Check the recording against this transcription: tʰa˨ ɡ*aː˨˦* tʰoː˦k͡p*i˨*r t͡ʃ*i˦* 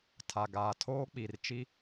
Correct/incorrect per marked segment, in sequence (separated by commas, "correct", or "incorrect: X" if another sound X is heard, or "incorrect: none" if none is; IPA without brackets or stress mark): incorrect: aː˨, correct, correct